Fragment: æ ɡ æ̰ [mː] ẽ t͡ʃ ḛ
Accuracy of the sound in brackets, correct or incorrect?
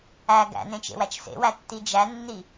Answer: incorrect